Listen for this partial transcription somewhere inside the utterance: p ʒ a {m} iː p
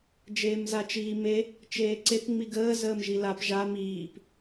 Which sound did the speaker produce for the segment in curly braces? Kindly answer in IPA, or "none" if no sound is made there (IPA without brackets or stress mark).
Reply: m